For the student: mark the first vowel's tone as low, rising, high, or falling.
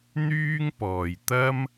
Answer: high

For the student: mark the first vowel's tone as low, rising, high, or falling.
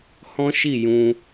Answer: high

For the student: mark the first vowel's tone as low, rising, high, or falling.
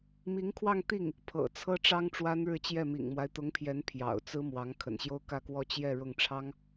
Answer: rising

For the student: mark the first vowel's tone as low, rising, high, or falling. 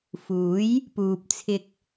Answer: rising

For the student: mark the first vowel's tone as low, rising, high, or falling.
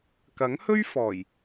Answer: rising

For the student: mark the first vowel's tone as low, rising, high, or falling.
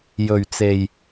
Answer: low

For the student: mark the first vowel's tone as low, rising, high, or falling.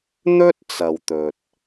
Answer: high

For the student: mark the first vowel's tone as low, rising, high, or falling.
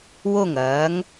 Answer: falling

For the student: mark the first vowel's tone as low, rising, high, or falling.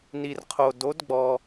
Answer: low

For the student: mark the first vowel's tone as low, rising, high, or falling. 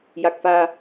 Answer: low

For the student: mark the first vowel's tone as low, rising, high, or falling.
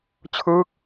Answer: falling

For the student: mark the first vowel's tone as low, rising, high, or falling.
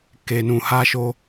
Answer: low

